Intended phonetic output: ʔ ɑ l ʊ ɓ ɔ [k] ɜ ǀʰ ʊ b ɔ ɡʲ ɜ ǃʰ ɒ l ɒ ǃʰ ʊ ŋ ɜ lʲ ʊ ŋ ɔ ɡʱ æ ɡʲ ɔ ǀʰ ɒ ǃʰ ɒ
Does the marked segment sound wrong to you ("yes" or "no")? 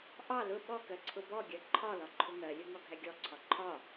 no